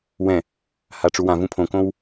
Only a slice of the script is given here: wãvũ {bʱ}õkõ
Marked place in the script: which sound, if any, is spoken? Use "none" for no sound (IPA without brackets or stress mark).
pʰ